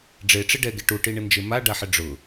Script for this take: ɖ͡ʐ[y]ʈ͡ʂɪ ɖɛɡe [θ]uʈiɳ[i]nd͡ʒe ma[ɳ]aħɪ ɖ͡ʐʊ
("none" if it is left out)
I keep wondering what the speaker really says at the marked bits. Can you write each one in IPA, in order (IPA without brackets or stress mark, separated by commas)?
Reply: e, ʈ, ɪ, ɖ